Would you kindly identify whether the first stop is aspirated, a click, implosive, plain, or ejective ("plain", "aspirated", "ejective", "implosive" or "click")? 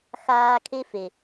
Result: aspirated